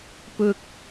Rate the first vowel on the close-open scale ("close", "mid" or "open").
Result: close